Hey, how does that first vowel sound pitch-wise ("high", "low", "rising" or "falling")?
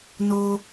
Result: high